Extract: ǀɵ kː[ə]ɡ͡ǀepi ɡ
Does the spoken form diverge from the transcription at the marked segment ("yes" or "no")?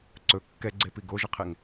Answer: yes